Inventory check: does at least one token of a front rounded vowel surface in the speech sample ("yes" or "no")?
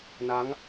no